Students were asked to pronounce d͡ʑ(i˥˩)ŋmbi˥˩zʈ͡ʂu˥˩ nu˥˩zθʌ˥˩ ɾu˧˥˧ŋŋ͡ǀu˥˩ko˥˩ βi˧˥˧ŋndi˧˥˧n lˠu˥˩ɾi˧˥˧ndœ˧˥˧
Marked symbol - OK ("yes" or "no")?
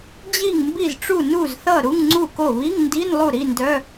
yes